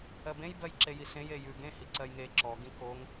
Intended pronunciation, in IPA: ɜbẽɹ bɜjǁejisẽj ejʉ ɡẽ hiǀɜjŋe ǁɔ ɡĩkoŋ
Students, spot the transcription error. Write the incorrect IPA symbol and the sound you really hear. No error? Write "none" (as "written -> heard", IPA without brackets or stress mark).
ɹ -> j